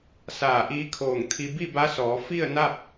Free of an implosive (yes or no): yes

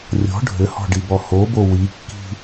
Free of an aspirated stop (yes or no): yes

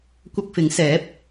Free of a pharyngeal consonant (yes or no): yes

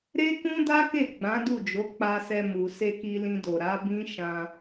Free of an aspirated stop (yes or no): yes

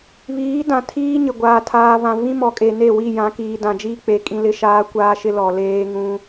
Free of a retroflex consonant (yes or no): yes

